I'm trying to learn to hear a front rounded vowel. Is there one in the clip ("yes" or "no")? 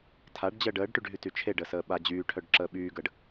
yes